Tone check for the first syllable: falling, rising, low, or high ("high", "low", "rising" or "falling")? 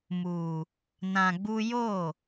low